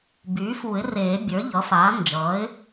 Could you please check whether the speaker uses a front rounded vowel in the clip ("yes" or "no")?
yes